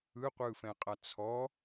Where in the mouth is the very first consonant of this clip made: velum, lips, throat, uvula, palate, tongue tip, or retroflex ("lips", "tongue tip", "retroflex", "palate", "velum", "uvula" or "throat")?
uvula